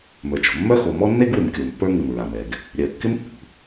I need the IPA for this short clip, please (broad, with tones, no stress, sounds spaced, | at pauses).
m ə˞˩ t͡ʃ o̤˩ mː œ˥ x o˩ m ɔ˥ nː e˥ ɡ w ɪ˩ m kʲ o˩ m pː ə˞˥ ŋ ɪ˩ m ɹ a˩ m ɛ˩ ɡ | ɾʲ œ˩ kː ɪ˥ m pː ṳ˩